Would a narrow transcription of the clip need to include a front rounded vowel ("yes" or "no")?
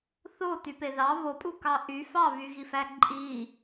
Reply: yes